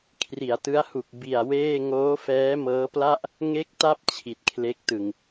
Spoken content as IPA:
kʰri˩˦a̯tɯ˦˥a̯hu˨˩k̚ bi˨˩a̯weː˥˩ ŋoː˦˥fɛː˦˥mɤː˦˥pla˥˩ʔ | ŋe˦˥k̚ta˦˥p̚ t͡ɕʰi˨˩t̚kʰle˦˥k̚tɯ˨˩ŋ

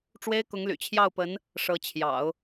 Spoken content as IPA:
ʈ͡ʂwe˥ɪ̯kʊ˧˥ŋly̰˨˩ t͡ɕʰjɑ˥˩ʊ̯pə˧˥n | ʂɤ˧˥t͡ɕʰjɑ̰˨˩˦ʊ̯

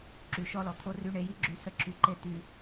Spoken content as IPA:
ǁy˨ʃɔ˦lɔ˨ t̪ʰo˧ry˧ɳe˨˦ji˦ ɡ͡ǁy˧sə˦ǁʰy˧ǃe˦ t̪y˧

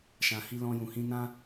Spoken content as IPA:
ʃã˨ hi˧ lɔ̃˧jũ˨hĩ˧nã˦

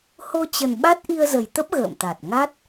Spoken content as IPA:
ho˧t͡ɕə˨˩n ɓa˦˥t̚ ʔi˧ə̯zə˨˩jt̪ə˦˥p̚ ɣə̰ː˧˨mt̪a˨˩t̚ ŋa˦˥t̚

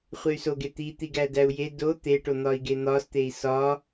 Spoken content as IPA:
χʷey̯soɡe t̪it̪iɡæ dæu̯je do t̪eʈo n̪ɒi̯ɡen̪ɒst̪ei̯ sɒ

